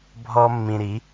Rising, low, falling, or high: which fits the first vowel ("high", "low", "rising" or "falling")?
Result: high